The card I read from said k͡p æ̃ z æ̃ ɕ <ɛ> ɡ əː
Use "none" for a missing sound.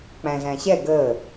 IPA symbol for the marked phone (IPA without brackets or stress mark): ɛ